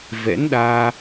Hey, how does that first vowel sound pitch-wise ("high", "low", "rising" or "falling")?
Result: rising